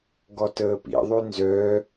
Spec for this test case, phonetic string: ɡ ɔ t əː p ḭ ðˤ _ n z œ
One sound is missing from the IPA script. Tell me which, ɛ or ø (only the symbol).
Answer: ø